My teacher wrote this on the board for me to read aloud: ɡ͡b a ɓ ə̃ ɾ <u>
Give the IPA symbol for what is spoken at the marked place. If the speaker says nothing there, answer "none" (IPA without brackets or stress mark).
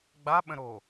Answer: o